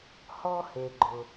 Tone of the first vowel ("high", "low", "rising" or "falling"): high